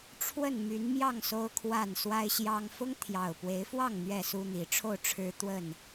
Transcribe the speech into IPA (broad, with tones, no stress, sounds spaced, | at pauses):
ʈ͡ʂʰ w ə˥˨ n m y˨˦ n m j ɑ˥˨ ŋ s o˦ ʊ̯ kʰ w a˥˨ n s w a˦ ɪ̯ ɕ j ɑ˦ ŋ f ʊ˦ ŋ t̪ʰ j ɑ˨˩ ʊ̯ p w e˨˦ ɪ̯ f w ɑ˥˨ ŋ n̪ ɥ ɛ˥˨ s u˦ n̪ i˨˦ ʈ͡ʂʰ o˥˨ ʊ̯ ʈ͡ʂʰ ɻ̩˦ t̪ w ə˥˨ n